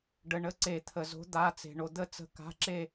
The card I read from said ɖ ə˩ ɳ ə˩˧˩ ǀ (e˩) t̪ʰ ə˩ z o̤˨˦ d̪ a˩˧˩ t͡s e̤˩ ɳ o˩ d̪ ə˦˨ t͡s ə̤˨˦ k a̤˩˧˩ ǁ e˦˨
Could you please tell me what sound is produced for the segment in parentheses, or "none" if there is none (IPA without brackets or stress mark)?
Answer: e˧˩˧